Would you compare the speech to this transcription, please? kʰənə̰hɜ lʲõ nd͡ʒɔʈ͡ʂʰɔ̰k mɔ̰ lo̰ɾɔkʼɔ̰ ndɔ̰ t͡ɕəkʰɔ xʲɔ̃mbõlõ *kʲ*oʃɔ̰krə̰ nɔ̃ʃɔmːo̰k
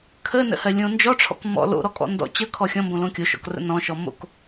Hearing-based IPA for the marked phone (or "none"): kʲ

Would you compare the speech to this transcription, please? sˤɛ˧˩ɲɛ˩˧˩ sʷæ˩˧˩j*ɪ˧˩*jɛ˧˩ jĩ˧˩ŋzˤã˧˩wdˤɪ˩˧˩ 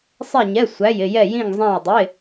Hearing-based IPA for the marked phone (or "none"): ɪ˧˩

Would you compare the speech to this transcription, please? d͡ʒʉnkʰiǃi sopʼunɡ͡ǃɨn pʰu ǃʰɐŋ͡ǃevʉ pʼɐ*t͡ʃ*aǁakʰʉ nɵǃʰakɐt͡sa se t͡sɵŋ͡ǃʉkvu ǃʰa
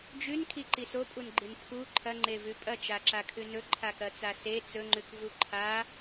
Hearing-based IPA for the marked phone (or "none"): t͡ʃ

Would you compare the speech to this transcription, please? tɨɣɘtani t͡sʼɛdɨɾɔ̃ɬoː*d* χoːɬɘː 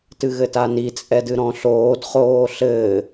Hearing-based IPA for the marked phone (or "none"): d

